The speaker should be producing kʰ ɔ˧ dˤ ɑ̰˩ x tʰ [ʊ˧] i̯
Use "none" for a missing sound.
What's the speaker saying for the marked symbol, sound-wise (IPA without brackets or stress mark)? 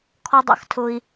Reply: ʊ˧